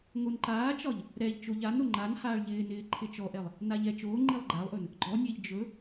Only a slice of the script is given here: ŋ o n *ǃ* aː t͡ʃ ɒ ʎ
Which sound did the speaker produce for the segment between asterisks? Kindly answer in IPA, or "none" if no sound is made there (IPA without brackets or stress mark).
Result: ǃ